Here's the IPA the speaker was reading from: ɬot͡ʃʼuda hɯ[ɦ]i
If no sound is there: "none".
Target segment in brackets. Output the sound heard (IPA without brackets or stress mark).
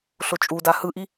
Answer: ʔ